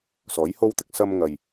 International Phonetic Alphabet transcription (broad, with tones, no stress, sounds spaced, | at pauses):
s ɔː˨˥ j h o˥ w t̪ ɪ˥ k̚ s ɐ˥ m ŋ ɐ˧ j